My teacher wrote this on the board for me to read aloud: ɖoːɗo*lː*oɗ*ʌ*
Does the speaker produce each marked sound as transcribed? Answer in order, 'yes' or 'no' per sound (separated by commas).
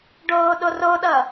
no, yes